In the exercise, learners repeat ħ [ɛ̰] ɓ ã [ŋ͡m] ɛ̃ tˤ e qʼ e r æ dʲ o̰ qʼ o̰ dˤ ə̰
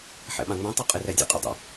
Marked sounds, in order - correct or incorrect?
correct, correct

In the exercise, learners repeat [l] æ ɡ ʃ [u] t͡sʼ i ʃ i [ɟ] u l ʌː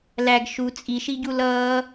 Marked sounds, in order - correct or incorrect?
correct, correct, correct

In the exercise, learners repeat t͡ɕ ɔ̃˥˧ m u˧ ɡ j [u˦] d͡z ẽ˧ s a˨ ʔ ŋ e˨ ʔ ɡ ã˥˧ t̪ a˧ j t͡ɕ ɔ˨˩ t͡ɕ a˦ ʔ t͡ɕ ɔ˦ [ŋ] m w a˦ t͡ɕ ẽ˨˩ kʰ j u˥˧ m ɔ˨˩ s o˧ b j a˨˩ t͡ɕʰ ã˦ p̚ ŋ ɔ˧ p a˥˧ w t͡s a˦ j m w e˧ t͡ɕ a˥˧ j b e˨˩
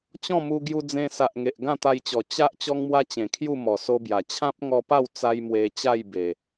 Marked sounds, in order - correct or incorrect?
incorrect, correct

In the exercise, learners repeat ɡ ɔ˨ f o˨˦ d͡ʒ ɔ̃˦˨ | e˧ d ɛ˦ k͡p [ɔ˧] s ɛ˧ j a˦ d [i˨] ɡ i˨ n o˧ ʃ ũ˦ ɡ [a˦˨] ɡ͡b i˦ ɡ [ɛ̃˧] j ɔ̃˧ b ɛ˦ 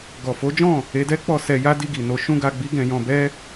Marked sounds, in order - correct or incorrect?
correct, incorrect, incorrect, correct

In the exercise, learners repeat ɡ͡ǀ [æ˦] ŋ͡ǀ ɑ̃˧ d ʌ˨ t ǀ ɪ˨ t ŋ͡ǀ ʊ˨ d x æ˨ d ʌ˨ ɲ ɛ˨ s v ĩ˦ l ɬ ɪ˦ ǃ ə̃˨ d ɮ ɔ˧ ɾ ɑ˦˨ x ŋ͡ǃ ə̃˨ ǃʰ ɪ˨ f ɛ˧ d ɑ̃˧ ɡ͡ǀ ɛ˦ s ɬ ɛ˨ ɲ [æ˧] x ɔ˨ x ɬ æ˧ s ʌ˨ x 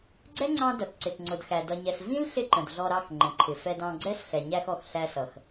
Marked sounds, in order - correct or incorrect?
incorrect, correct

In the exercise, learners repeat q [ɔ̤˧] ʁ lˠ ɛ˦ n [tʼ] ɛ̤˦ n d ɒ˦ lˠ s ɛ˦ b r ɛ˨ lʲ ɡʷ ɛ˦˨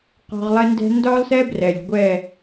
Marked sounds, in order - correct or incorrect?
correct, incorrect

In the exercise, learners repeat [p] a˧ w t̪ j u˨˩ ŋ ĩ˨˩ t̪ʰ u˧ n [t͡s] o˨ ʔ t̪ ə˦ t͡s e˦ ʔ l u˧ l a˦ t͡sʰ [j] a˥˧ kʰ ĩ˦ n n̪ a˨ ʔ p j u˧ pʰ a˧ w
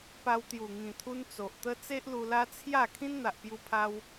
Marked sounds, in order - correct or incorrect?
correct, correct, correct

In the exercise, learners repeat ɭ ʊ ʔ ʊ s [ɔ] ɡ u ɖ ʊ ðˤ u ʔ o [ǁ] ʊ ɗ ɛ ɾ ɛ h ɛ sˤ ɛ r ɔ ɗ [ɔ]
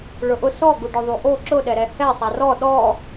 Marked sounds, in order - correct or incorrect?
correct, correct, correct

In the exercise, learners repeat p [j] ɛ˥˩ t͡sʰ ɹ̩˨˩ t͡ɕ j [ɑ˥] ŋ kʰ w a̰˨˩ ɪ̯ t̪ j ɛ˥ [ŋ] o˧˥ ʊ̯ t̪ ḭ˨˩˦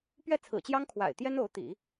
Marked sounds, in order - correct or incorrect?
incorrect, correct, incorrect

